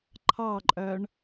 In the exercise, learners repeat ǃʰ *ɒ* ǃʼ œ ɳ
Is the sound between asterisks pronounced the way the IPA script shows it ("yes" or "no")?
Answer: no